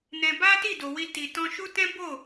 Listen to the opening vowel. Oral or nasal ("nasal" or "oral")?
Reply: nasal